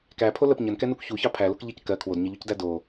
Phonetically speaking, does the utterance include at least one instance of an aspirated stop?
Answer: yes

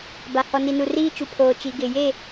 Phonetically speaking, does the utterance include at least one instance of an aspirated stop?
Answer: yes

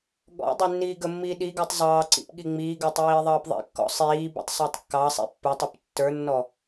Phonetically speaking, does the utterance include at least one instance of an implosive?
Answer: yes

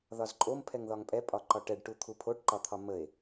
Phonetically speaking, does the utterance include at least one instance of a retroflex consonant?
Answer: yes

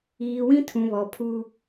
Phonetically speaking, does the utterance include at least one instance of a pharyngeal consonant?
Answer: no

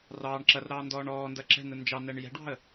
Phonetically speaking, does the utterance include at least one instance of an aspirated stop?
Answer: no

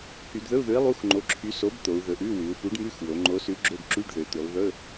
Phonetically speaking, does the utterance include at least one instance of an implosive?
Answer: no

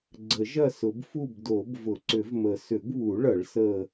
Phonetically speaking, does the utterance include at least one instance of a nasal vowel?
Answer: no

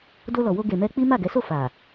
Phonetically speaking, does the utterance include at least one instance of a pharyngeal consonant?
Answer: no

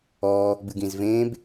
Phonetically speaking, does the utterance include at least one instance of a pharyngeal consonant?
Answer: no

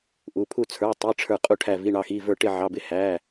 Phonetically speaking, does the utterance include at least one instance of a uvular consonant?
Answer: yes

